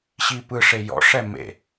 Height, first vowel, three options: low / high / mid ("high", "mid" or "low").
high